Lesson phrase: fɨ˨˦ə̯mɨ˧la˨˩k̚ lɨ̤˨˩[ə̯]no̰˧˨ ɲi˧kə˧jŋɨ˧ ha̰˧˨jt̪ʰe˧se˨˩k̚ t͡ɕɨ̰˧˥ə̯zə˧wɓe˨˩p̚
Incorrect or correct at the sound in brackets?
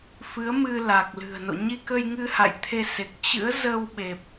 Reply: correct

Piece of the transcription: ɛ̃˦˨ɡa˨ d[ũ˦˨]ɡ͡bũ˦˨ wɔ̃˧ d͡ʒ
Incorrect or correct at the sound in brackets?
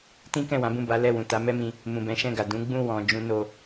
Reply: incorrect: ũ˨˦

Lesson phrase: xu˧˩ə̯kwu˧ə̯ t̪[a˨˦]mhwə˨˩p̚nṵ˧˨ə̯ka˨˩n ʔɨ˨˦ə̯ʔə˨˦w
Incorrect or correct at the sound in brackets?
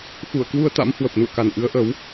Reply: incorrect: a̰˧˥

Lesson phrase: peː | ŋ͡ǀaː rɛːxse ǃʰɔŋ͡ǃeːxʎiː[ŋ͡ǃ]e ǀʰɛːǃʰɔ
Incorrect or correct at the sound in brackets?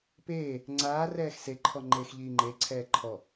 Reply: correct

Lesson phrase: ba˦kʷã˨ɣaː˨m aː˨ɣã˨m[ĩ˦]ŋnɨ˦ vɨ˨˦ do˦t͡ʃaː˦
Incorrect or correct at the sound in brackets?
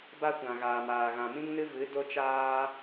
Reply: correct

